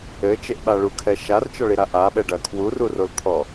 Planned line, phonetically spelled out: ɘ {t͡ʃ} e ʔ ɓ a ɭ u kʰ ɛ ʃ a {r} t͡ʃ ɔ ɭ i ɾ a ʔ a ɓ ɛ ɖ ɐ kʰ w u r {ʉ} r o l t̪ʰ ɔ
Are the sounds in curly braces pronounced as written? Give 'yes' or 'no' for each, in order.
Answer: yes, yes, no

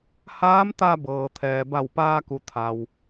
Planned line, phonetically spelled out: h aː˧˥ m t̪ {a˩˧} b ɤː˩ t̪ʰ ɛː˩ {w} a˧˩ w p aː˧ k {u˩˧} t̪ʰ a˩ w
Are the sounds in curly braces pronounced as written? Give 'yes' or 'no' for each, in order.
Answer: no, no, yes

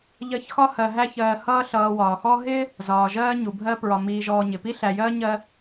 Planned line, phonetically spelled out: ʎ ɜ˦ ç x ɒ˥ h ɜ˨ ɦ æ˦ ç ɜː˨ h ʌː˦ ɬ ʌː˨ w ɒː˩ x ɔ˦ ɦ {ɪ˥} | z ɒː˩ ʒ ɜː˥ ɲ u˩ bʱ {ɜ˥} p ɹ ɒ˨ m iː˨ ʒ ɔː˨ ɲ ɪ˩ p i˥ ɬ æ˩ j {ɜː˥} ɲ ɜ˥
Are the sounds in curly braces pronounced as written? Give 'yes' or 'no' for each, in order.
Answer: yes, yes, yes

